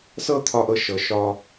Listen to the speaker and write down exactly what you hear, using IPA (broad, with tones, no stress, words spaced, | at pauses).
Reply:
sɤ˦t̪ʰɒ˧ʔɤ˧ ʃɤ˨ ʃɒ˧